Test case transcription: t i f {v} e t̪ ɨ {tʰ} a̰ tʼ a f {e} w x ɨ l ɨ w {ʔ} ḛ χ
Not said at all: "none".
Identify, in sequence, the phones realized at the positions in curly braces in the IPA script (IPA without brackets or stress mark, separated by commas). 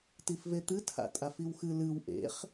v, tʰ, i, ʔ